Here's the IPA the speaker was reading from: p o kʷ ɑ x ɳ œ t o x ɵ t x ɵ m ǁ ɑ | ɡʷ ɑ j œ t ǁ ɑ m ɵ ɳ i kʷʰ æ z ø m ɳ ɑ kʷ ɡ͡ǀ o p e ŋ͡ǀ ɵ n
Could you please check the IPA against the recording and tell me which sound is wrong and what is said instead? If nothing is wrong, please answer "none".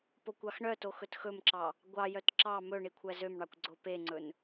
none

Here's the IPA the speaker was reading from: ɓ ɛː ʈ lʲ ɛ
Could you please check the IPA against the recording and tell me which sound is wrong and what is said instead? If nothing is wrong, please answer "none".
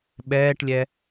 none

